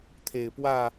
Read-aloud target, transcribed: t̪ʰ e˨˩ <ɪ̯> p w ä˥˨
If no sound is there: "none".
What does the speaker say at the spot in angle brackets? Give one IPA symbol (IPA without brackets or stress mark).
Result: ɪ̯